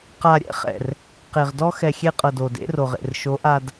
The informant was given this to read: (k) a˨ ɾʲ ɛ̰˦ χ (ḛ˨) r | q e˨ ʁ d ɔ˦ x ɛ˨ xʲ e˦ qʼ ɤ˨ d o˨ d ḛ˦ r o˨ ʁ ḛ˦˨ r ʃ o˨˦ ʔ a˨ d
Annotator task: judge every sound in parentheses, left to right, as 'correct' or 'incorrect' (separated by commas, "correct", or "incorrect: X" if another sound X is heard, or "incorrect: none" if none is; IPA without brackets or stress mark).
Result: incorrect: q, incorrect: ɛ̰˨